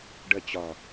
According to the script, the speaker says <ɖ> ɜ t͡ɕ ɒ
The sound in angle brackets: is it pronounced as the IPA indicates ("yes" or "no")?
yes